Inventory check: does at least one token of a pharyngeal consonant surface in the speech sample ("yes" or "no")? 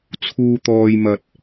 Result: no